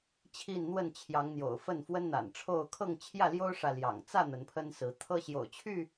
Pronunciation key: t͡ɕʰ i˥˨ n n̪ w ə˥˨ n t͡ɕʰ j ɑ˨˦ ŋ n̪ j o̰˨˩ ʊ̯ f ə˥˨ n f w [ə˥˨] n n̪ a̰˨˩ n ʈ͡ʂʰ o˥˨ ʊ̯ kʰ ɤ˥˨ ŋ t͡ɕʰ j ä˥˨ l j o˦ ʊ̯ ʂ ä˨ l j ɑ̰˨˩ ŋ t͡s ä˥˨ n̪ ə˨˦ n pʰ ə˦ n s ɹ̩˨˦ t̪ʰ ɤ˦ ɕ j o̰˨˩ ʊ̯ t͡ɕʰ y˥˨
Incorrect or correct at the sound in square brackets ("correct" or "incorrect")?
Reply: incorrect